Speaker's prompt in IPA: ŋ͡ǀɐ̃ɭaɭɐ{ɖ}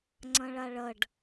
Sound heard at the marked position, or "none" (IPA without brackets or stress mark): ɖ